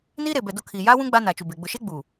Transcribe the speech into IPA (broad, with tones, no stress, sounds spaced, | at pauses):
n iː˦ ɾ e˨ b ɛ˨ d o˦ kʰ iː˨ j aː˦ w ũ˦ ɡ͡b a˦ n a˨ t͡ʃ u˨ b e˨ ɡ͡b ʊ˨ ʃ e˦ ɡ͡b u˨